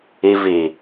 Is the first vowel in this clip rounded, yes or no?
no